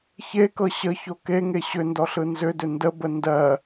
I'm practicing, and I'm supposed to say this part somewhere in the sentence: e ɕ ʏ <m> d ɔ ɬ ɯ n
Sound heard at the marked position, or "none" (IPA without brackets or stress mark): n